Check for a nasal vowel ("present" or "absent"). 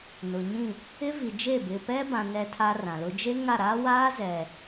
present